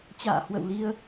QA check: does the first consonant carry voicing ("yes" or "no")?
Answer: no